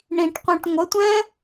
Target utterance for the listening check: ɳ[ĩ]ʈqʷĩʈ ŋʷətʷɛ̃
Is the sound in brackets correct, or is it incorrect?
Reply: correct